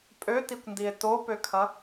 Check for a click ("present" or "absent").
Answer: absent